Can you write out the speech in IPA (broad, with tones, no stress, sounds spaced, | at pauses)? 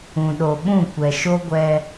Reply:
ũ˨ ɗ o˨ ɓ ũ˦˨ kʷ ɛ˨ ʃ o˦ ɡʷ ɛ˦